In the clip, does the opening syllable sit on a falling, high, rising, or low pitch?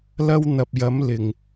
high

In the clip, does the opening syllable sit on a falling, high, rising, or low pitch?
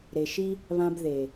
low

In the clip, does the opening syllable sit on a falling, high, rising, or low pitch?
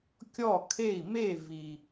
falling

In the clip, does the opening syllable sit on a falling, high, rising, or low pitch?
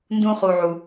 high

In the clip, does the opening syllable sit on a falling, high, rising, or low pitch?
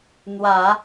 rising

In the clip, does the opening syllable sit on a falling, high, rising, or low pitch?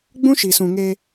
high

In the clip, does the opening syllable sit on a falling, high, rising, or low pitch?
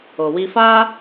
low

